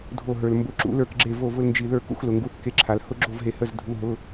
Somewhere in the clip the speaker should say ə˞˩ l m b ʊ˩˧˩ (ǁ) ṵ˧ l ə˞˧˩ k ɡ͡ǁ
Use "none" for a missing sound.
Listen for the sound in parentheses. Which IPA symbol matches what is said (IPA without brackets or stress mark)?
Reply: ǁ